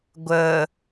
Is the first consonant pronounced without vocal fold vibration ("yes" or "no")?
no